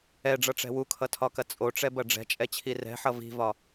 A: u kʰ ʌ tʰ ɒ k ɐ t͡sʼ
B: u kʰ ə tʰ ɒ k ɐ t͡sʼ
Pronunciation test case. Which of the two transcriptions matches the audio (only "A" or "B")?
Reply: A